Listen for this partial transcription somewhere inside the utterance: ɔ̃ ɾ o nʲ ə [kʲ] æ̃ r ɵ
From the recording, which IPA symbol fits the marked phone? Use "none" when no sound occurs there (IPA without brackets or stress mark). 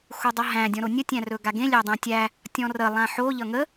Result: tʲ